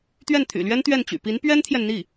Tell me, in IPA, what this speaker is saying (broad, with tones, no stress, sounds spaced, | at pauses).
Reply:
t̪ ɥ ɛ˥˩ n t̪ʰ y̰˨˩ l ɥ ɛ˥ n t̪ ɥ ɛ˥˩ n t͡ɕ y̰˨˩ p i˧˥ n p ɥ ɛ˥ n t̪ʰ j ɛ˨ n n̪ i˥˩